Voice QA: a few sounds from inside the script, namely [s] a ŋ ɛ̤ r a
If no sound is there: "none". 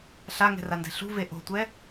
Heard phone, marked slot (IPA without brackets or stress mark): ɬ